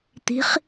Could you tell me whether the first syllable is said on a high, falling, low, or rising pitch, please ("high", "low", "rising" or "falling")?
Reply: rising